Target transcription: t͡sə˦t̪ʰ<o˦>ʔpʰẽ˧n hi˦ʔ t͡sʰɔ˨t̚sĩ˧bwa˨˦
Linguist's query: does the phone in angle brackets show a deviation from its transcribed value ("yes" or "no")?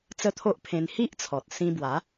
no